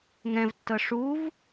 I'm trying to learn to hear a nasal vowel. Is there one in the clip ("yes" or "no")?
yes